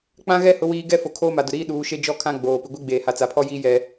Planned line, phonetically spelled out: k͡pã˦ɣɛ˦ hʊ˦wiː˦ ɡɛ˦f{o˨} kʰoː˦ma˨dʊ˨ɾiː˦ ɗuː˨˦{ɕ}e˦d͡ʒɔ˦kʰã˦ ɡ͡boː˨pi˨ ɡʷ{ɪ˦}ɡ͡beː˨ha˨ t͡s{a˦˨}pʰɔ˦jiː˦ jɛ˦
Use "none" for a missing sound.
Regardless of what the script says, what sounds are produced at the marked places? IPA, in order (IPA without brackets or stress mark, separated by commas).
o˨, ʃ, i˦, a˨